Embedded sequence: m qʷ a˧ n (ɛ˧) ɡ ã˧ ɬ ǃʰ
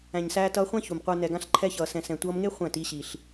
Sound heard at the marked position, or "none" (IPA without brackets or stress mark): ɛ˨